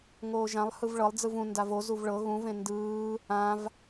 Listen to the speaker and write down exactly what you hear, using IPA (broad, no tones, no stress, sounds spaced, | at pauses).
ŋ oː ʒ ã lˠ h ɯ v ɭ ɤ lˠ d͡z ɯ v ũ n d a v o z u v ɭ ɤ ɣ ũ v ẽ n d ɯː | ã v